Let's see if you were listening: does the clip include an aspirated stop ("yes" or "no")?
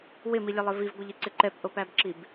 no